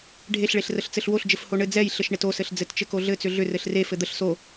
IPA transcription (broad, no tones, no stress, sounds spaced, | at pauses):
ɖʱ e ɬ ɭ e ɬ r ə ɬ t͡s ɘ ɬ w o ɬ d͡ʒ ɘ f h o ɳ ɘ d͡z ɛ j ɬ ɘ ʃ ɳ e t o s ɘ ɬ d͡z ɘ t t͡ʃ ɘ k o ɮ ɘ t͡s ʏ ɮ ʏ r ɘ ɬ r e f ɘ d̪ ə ɬ s o